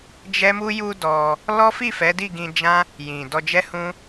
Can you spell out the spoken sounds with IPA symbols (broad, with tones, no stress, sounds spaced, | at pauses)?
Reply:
d͡ʒ ɛ˦ m u˦ j u˧ d ɔ˧ | l ɔ˦ f i˦˨ f ɛ˨˦ d i˦˨ ɡ ĩ˧ d͡ʒ ã˦ | j ĩ˨ d ɔ˧ d͡ʒ ɛ˦ h ũ˦